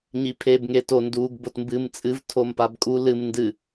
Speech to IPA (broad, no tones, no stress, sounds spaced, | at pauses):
ɲ i pʰ e b ŋ e t o n d u ɡ b o t m b ɨ m t͡sʼ ɨ v tʰ o m p a b kʼ u l ɨ m n d ɨ